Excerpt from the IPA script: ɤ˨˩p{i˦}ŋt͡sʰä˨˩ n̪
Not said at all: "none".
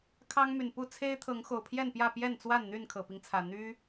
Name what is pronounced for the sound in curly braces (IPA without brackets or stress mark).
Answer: i˦